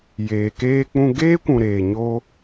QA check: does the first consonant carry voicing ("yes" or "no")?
yes